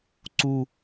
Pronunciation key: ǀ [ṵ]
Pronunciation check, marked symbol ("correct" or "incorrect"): incorrect